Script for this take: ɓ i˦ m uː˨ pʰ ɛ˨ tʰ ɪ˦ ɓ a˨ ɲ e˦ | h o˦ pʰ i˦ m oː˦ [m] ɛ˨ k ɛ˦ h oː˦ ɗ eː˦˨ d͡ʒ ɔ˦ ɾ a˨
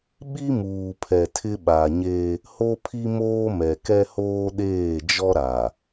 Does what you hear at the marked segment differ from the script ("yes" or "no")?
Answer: no